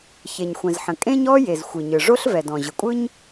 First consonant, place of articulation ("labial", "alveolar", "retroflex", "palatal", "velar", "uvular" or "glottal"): palatal